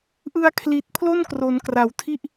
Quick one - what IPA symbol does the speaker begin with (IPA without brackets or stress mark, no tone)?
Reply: ʔ